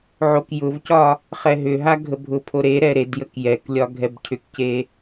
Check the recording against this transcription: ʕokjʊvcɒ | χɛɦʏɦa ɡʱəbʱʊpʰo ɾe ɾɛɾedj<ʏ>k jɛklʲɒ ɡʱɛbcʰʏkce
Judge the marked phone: incorrect: ə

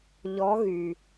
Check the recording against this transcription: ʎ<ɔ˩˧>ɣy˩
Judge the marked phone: incorrect: ɔ˧˥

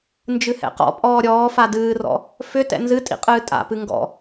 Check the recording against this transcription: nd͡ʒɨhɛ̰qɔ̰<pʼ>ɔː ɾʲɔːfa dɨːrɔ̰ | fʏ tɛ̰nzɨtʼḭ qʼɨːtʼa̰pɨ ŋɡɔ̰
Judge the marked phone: correct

